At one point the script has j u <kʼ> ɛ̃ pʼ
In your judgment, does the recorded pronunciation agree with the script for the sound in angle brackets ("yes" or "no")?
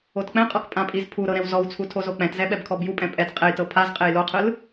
no